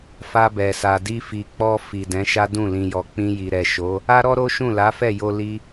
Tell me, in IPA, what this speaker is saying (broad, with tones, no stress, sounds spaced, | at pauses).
f a˧ b ɛ˨ s a˨ d i˧ f i˨ k͡p ɔ˧ f i˨ d ɛ̃˨˦ ʃ a˦ d ũ˦˨ l ĩ˨ j ɔ˨ k͡p ĩ˧ j i˨ ɾ ɛ˨ ʃ o˨˦ | a˦ ɾ ɔ˦ ɾ o˦ ʃ ũ˦˨ l a˨˦ f ɛ˦˨ j o˧ l i˧